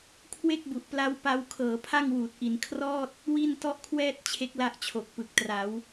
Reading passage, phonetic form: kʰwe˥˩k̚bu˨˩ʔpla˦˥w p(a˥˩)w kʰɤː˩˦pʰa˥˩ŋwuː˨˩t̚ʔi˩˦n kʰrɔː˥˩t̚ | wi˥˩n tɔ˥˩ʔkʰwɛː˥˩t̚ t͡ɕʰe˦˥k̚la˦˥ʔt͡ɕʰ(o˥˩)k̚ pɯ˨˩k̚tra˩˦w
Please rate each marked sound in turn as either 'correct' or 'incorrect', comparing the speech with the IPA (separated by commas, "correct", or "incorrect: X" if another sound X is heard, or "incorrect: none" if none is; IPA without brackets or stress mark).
incorrect: a˧, incorrect: o˨˩